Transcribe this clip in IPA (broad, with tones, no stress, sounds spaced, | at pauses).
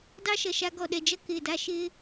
d ɑ˦ ʃ ɐ˨ ʃ a˧ ɡ ɔ˨ ɗ ɛ˨ d͡ʒ ɐ˦ k ɪː˨ d a˦ ʃ ɪː˧